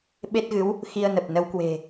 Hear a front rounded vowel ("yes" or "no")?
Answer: no